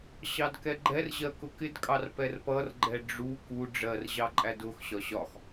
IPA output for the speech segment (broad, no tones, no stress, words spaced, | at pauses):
ɕɑdkɛɡ͡ǃɛrʑɜ kʊkɪdkʼɑr pɛrpʌrɡ͡ǃɛ ɖ͡ʐu ku ɖ͡ʐɜrʑɑ ǃʼædʊxɕɒ ɕɒx